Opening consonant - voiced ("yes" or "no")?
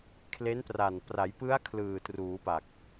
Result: no